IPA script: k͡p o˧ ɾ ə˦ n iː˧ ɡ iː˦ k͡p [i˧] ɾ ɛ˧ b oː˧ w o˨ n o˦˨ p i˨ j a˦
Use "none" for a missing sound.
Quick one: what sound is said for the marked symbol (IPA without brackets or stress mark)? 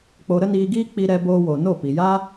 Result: i˧